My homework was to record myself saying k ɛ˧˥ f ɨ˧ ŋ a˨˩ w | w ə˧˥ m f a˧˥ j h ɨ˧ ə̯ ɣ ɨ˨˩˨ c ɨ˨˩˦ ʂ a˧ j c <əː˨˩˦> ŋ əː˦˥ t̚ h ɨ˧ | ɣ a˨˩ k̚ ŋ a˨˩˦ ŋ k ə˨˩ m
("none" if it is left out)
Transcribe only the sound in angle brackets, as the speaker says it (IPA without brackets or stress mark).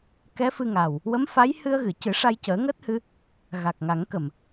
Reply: əː˨˩˦